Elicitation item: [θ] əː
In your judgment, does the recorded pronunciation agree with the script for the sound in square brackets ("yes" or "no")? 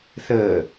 yes